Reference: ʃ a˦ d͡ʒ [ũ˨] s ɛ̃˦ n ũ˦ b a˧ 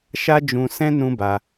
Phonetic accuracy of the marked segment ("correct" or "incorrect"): incorrect